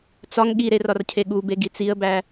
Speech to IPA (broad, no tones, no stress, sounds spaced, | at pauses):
t͡s ɒ ŋ ɠ i ɾ e r ɒ r cʰ e ɠ u b e ɡ i t͡s i ə̯ b æ